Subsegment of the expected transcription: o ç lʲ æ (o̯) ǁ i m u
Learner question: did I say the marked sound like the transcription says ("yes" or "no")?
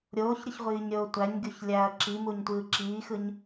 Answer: no